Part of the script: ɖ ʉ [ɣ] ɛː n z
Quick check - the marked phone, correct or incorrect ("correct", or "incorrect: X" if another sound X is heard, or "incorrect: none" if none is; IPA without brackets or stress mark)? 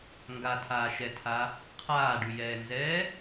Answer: incorrect: j